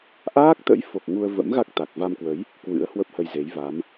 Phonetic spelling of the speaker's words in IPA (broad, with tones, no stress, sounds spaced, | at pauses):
ʔ aː˦˥ k̚ t̪ ə̰˧˥ j f o˨˩ k̚ ŋ u˧ ə̯ v ə̰˧˥ m ɣ a˦˥ k̚ t̪ a˨˩ k̚ v a˧ m k w ə˨˦ j | k w ɨ̰˧˥ ə̯ h w ə˦˥ p̚ h ə˧ j z e˨˦ j v a˨˦ m